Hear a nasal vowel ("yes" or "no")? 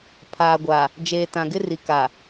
yes